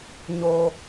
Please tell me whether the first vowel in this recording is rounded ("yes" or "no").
yes